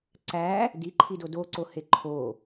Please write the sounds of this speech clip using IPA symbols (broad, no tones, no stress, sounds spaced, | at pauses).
ǀ æ | d i ǃʰ i d o d o ǀ o h e ǃʰ o